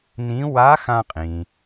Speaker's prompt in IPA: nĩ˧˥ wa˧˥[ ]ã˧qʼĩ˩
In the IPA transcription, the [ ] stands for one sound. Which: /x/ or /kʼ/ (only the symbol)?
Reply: x